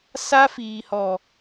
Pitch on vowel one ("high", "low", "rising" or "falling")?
high